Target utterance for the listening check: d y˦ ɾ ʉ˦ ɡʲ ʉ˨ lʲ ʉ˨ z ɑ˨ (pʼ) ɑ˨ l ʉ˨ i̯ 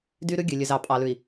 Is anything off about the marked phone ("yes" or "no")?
no